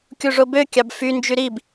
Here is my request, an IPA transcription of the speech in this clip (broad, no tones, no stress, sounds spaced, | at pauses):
kʲ u ʐ o b ø kʲ ɑ b f y n d͡ʒ y ɾ i b